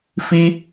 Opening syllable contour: high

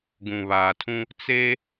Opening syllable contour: low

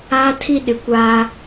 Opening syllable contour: high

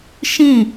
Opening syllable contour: falling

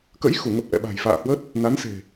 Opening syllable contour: rising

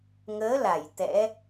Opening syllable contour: rising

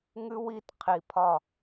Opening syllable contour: high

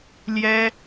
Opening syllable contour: high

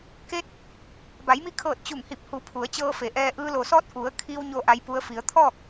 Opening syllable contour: rising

